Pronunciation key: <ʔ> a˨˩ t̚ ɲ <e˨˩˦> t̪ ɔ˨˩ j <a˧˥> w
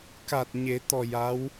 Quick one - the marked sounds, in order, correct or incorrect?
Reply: incorrect, correct, correct

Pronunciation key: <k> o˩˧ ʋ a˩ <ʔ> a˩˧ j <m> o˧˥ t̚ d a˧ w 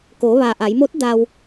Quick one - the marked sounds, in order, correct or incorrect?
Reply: correct, correct, correct

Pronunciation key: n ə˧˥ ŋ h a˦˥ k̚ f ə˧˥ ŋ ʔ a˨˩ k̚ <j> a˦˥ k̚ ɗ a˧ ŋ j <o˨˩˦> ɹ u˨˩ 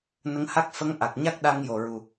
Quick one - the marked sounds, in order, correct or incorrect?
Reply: incorrect, incorrect

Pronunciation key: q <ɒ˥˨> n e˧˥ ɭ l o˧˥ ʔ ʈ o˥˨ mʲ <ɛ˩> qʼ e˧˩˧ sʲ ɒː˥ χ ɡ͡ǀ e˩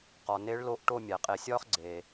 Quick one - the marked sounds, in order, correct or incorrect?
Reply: incorrect, incorrect

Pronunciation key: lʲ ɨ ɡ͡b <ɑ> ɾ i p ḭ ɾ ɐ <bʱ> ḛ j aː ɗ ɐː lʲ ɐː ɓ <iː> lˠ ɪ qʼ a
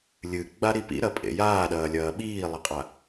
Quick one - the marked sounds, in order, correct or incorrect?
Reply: incorrect, incorrect, correct

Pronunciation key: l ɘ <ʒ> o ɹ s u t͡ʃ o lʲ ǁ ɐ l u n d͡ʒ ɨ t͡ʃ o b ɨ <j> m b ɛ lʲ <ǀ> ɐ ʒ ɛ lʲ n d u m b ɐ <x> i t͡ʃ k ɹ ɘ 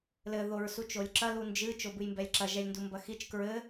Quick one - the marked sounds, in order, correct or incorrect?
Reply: incorrect, correct, incorrect, correct

